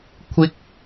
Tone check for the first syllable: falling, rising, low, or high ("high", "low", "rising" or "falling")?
high